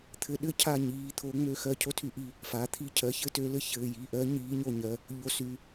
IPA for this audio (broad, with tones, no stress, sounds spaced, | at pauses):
t̪ʰ ɘ˨˥ ɗ ɘ˦ cʰ a˦˨ ɲ iː˩˧˩ t̪ʰ o˨˥ ŋ͡m ø˦˨ x ɜ˦˨ cʰ o˦ tʰ y˦˨ ʔ i˦˨ | f a˩˧˩ t̪ʰ i˦ cʰ ɜ˩˧˩ ç ɘ˦ t ø˨˥ l ɘ˨˥ ç ɘː˩˧˩ j i˩˧˩ ʔ ɜ˨˥ ɲ iː˨˥ ɲ o˦˨ ɲ ɜ˩˧˩ | ʎ o˨˥ s y˩˧˩